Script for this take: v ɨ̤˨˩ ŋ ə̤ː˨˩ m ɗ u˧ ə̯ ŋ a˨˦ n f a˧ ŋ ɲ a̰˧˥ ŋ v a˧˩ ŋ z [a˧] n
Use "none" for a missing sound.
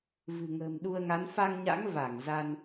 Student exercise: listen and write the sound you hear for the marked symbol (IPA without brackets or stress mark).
a˧